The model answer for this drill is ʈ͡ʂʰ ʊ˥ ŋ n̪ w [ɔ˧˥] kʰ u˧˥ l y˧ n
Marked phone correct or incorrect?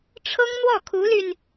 incorrect